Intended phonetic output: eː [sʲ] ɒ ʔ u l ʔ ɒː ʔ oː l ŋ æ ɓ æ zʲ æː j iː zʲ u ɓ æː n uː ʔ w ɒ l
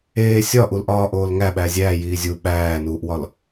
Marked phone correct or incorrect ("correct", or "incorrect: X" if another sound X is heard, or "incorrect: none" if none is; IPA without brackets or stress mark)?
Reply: correct